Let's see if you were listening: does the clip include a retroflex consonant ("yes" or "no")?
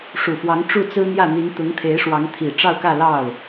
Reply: yes